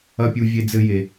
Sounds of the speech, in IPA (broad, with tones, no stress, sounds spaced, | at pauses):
ɐ˥ pʲ u˦ vʲ e˦ d͡z ɘ˦ j e˨